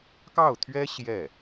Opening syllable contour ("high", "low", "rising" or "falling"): falling